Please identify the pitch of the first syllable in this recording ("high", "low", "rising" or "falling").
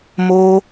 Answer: high